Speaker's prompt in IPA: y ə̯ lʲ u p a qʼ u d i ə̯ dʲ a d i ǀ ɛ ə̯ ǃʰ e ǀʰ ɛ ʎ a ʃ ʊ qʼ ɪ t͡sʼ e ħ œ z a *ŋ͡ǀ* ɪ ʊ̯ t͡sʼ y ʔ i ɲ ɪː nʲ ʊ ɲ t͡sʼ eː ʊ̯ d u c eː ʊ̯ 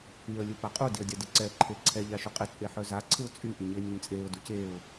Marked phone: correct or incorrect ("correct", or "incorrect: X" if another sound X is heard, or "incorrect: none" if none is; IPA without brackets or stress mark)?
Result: incorrect: ǀʰ